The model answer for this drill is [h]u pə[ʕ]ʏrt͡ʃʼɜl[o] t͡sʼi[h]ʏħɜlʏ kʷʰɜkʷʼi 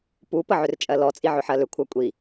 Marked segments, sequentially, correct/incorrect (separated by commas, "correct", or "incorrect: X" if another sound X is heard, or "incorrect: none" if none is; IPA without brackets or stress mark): incorrect: p, correct, incorrect: ɔ, incorrect: ʕ